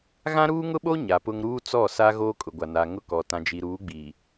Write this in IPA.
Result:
ɣ ã˦ ɾ uː˦ ŋ ʊ˦ ɓ o˦ ɲ a˨ p ʊ˦ ŋ ɾ uː˦ t͡s ɔ˦˨ s a˦ ɣ oː˦ kʼ ʊ˨ ɡʷ a˨ n a˨ ŋ ʊ˦ k ɔ˨ t ã˨ d͡ʒ i˨ ɾ uː˨˦ ɡ͡b iː˨

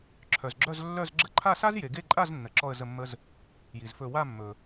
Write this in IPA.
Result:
ǁʰ œ˨ z ɡ͡ǁ œ˥˧ z lː œ˥˧ z ɡ͡ǁ ə˥˧ ǃʰ a˥˧ s a˥ z j e˨ ɡ e˥˧ ǃʼ a˥˧ z nː ə˨ ǁ ɔ˥˧ ə̯ z ə˥˧ mː ə˥ z | j i˨ z f ɵ˥˧ w a˥˧ mː ɵ˨

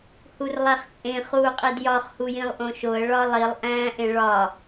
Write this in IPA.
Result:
h u r lˠ æ χ t͡sʼ ẽ χ uː qʼ i d j ɒ χ h u j ĩ lˠ ʔ õ ʃ o ə̯ ɭ ɒ lˠ i lˠ ʔ æ̃ː ʔ ẽ ɭ ɒ

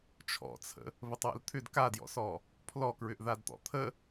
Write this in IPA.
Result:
t͡ʃʰ ɔ̰ t͡sʰ ə̰ | β ə tˤ w ə̰ l t̪ʰ ʏ d k a d j ɔ̰ s ɔ | pʰ l ɔ k ɹ ʏ ʔ ð a d t̪ ɔ̰ t̪ʰ ə

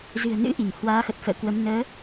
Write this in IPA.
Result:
z ɨ̤˨˩ ə̯ n ɨ̰˧˥ ʔ i˧˩ ŋ h w aː˨˦ x ə˨˩ t̚ f ə̰ː˧˨ k w ə˨˦ m n əː˨˦

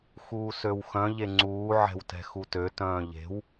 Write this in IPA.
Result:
x uː s ø w x œ̃ ʎ e ŋ͡ǀ uː ʕ ɛ̤ w t ɛ̤ x u t ø t œ̃ː ʎ e̤ w

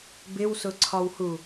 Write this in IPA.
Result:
b ɪ w s ʊ ǀʰ ɒ w h u

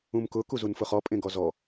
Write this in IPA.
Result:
ũ m k ʊ k u z u n f ʊ χ ɔ pʼ ẽ ɡ ɔ z ɔ

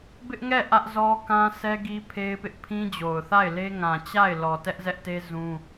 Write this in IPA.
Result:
b ɪ˦ ʔ ŋ ɛ˦˨ ʔ ä˦ ʔ z ɔ˦ k ã˦ s ɛ˦ ɡ i˦ pʰ e˦ ɪ̯ p ɪ˦ ʔ pʰ ĩ˦ d͡ʑ o˨ ʊ̯ θ a˦˨ ɪ̯ l e˦ ŋ ã˨ t͡ɕ a˦˨ ɪ̯ l ɔ˨ t ɛ˦ ʔ z ɛ˦ ʔ t e˦ z ũ˦

